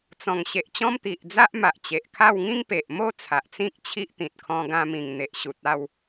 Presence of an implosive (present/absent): absent